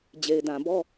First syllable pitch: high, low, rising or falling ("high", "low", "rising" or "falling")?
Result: low